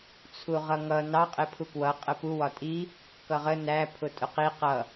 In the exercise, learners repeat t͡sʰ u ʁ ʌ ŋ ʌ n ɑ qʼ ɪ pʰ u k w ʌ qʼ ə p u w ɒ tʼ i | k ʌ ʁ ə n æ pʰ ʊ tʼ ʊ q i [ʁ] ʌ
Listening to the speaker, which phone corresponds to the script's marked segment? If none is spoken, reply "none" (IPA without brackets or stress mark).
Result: q